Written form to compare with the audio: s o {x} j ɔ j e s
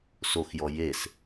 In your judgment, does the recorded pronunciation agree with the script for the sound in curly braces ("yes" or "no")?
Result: yes